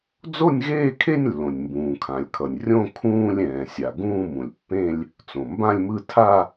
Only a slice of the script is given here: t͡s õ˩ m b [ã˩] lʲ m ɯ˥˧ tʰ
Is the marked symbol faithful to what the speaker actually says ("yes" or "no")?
no